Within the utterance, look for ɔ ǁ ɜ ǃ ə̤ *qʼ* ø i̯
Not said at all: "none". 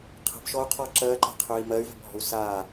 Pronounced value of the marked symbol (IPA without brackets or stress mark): qʰ